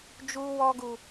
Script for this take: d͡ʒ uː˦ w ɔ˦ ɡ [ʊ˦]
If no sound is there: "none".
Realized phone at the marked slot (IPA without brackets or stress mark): u˦